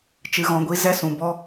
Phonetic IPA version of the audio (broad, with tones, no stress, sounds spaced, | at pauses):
t͡ʃ ɨ˧ ɣ ɔ̃˧ ɡʷ i˦ z ɛ˦˨ s ũ˨ b ɔ˦